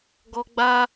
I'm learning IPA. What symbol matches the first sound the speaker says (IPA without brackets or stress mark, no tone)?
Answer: ɡ